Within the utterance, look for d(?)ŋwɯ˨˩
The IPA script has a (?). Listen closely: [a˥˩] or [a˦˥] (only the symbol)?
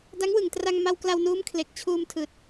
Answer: a˦˥